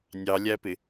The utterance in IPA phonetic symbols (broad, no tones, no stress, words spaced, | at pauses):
nʲɑlʲæpɪ